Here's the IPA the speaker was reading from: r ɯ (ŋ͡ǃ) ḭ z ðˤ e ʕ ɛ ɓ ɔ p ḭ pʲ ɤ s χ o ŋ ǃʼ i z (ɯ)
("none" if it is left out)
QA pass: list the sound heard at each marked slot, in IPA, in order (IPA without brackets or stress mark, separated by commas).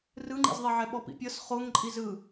ŋ͡ǃ, ɯ